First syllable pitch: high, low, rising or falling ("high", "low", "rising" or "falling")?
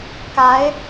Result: rising